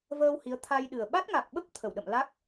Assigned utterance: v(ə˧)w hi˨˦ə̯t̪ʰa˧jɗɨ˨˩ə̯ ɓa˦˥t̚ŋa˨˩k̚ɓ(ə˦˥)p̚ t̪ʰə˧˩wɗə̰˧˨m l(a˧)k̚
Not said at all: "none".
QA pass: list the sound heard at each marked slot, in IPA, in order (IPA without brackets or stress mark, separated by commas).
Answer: əː˧, ə˦˥, a˦˥